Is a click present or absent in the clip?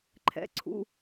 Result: present